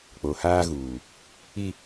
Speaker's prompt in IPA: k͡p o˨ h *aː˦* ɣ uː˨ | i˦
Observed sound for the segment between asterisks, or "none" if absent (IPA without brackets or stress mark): aː˦